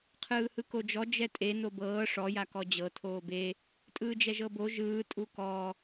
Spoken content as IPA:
qʰɯːhɯkod͡ʒɔ d͡ʒɛtʼe nobɤː ʂɔ jakɔd͡ʑɤ tʰoːbe | tʼɯːd͡ʒɛʒɤbo ʒɯː tʼukɔ

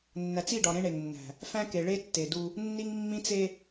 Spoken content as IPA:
nːæ˨t͡si˦˨ɖɒ˨ ɾẽ˦ɳe˨ŋnːæ̤˨ | fæ̃˦ke˨ɭe˦ tːe˨du˦ | nːi˦ŋmːĩ˦t͡se˦

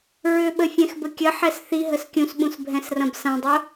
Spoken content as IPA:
ɹʏɓə fʲɛ̃xbəkʲəħɛs θiɦəs kʲũsɓũs bʱɛ̃srɐ̃bsɐ̃dˤʊ

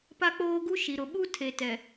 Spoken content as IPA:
pa˦k͡poː˦ɡu˦ ʃi˨ɾʊ˨ ɓu˦tʰe˨ tɛ˨

